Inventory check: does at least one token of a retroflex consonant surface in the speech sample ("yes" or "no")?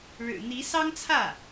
yes